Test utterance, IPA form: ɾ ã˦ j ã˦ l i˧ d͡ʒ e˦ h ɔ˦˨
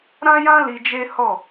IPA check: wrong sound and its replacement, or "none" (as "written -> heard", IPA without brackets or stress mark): none